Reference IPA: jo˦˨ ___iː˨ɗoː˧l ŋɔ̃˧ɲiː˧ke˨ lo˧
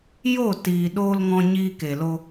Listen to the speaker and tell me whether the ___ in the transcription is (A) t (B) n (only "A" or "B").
A